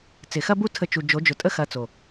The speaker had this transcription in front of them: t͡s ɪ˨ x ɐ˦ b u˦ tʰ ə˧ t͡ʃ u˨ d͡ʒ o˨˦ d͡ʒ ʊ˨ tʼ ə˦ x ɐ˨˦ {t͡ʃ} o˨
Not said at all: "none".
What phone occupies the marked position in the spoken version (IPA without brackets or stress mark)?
t͡s